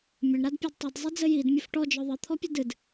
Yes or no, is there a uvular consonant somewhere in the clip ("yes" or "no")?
no